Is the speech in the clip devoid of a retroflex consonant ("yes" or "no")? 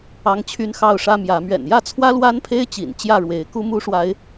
no